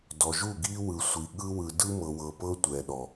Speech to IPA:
dɔ˨ʒu˦˨ɡi˦wɯ˨ sʷi˨ ɠɯ˦wɯ˨ dɯ˦mɤ˨wɤ˨ pɤ˦tʷɛ˨ɗɔ˨

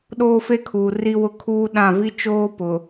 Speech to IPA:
ɗoː˦fe˦kʰuː˨ ri˦wʊ˦ kʰuː˦ɗã˦˨ vi˦ t͡ʃoː˦ pʊ˨

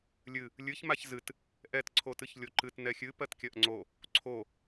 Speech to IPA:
lʲɨ | lʲɨç maçzɨt | ʔɛt ǀʰotɨçlʲoǃɨt nɛxʲɨ pɜtkʲɜʔŋ͡ǀo | ǀʰo

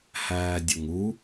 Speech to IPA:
hæːdʲʊŋu

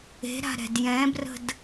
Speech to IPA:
e̤ɾa̤ ɾɛ̤djɛ̃brə̤d

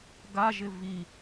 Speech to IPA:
ɡaʒɪ vi

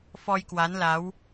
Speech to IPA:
fɔ˧jkwa˨˦nla˨˦w

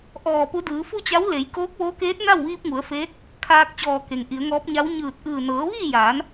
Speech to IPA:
ʔɔː˧˩pu˧˥ dɯː˩˧fu˥˨t͡ɕa˧˥w le˩˧j koː˧˥k̚ʋoː˧˥keː˧˥t̚ na˥˨wʋiː˧p̚ŋu˩˧ə̯feː˧˥t̚ | kʰaː˧k̚t͡ɕɔː˧˩ ke˩ŋʔi˩˧ə̯ŋɔː˧˥p̚ɲa˧˥w ɲɯː˧˩t̚ʔɯː˧˩ nɤː˩˧ʋiː˥˨jaː˩˧n

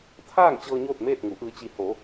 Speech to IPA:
t̪ʰaː˥˨ŋt͡ɕɤː˧ ɲoː˥˨t̚meː˥˨t̚ŋu˩˧ ʔɯː˧t͡ɕi˧ ho˩˧

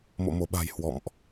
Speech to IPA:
mo̰˧˨mo˧˩ɓa̤˨˩j hwɔ̰˧˨mʔ

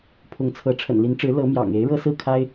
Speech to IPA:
pʰʊ˨˦ŋt͡sʰɤ˨˦ ʈ͡ʂʰə̰˨˩nli˨˦nʈ͡ʂɻ̩˨˦ lɤ˨˦mjɑ̰˨˩ŋ e˨˦ɪ̯ɻɤ˦ sɹ̩˥˨kʰa˦ɪ̯

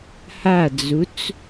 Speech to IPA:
had͡zut͡s

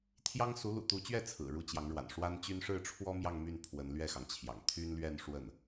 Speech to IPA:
t̪ʰjɑ˥ŋ su˧˥lṵ˨˩t̪u˧˥t͡ɕɥɛ˥˩ t͡sʰɹ̩˨˩ɻu˥˩ t͡ɕjɑ˧˥ŋɻwa̰˨˩n ʂwa˥nt͡ɕy˥n ʂɻ̩˥˩ʈ͡ʂʰwɔ˥ mjɑ˥˧ŋmy˥˩n pʰwə˧˥nlɥɛ˥˩xɑ˩ŋt͡ɕʰjɑ̰˨˩ŋ t̪ʰy˥nlɥɛ˥˧n ʂwə˥˩n

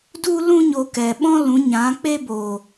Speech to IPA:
du˦lũ˦ ɲo˧kɛ˨ ɓɔ̃˦lũ˨˦ ɲã˨˦k͡pe˦ bo˨

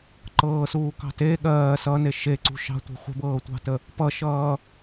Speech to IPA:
ǃɤːsuːkɑ̤ te ɠɜː sʌne ʃeǀṳ ʃɑ̤tʷe̤ χʷə̤bɤːtʷɑ̤tə | pʌʃʌː

